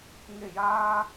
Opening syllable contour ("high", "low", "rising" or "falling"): falling